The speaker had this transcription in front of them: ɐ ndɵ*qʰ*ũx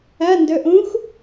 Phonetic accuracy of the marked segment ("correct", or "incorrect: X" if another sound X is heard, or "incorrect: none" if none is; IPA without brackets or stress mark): incorrect: ʔ